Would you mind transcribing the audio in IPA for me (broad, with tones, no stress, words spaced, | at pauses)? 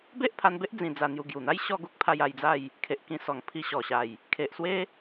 be˦ʔpʰa˧nbe˦ʔ d͡zĩ˧d͡za˧n̪ju˧ ɡju˨˩n̪a˦j ɕɔ˥˧ɡu˦k̚ pʰa˧j a˧jd͡za˥˧j | kʰe˨ʔkĩ˧sɔ˨˩ŋ pʰi˧ɕɔ˨˩ɕa˨˩j | kʰe˨ʔswe˦